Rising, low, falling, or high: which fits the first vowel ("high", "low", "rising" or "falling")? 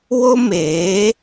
high